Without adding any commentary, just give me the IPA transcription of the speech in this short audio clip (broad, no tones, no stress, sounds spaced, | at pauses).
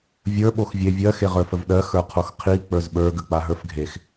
vʲ ə˞ ɓ o x vʲ e vʲ ɜ x e ʁ ə˞ f ə v ɗ ɜ x ə˞ qʰ o x qʰ i k͡p ə˞ z ɓ ə˞ ɡ ə k͡p a ɦ ə˞ f ɡʱ e x